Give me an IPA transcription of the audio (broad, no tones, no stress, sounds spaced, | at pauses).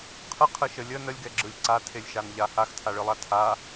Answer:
qʰ ɯ qʰ ɯ ʃ ə lʲ ə n ə lʲ ɡ ɛ ɡ͡ǁ ɯ lʲ ǀ a tʰ e lʲ ʃ a n ʎ a h a x tʰ a ɭ ɯ lˠ a tʰ a